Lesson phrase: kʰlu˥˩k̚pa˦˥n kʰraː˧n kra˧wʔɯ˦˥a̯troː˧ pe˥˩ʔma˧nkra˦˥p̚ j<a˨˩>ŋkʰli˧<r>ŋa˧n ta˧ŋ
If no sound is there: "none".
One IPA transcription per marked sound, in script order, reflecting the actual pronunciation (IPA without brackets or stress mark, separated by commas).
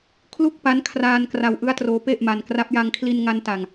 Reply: a˧, n